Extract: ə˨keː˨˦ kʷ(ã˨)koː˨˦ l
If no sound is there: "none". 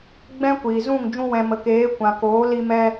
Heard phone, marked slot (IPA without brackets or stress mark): ã˨